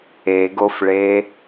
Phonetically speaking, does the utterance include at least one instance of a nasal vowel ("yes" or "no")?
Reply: no